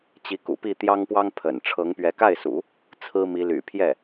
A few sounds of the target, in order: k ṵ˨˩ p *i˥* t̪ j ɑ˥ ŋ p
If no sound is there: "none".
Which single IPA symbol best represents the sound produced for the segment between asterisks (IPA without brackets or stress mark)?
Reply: i˥˩